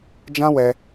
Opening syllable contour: high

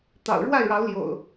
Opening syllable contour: low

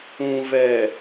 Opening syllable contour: low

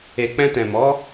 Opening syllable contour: low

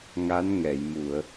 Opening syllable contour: rising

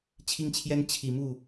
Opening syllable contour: high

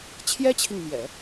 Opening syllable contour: high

